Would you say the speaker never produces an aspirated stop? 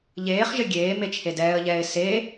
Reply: no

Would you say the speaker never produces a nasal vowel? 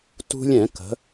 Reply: no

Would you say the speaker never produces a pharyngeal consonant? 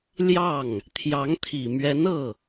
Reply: yes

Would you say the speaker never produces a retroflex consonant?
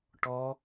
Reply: no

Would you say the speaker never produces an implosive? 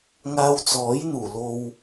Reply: yes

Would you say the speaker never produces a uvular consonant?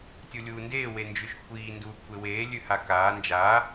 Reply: yes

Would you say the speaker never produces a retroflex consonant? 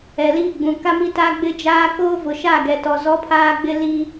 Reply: yes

